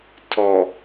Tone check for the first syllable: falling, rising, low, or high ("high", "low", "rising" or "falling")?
low